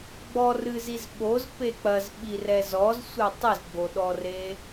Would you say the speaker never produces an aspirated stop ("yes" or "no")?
yes